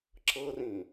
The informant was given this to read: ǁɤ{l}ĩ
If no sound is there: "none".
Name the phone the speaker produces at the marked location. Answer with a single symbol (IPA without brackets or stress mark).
r